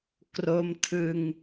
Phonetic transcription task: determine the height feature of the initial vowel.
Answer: mid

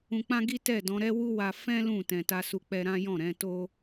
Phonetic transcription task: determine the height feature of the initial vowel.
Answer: high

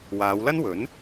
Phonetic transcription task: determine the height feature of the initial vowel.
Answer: low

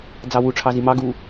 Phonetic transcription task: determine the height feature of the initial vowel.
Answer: low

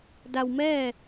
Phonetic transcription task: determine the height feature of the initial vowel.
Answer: low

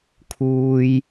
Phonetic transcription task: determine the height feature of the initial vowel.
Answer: high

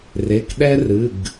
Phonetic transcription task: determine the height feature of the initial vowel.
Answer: mid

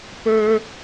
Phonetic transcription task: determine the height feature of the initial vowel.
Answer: mid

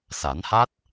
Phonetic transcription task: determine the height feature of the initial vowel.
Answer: low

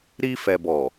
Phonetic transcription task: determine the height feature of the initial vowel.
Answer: high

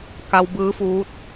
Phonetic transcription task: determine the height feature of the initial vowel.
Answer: low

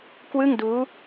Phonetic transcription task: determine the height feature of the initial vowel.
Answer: high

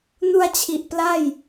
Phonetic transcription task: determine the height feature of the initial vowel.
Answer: high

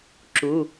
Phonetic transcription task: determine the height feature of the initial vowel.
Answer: high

